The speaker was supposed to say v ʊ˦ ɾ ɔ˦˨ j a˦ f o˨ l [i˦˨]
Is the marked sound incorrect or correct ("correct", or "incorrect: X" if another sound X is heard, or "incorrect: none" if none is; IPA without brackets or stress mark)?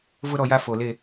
incorrect: e˦˨